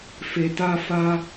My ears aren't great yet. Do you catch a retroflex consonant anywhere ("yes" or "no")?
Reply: no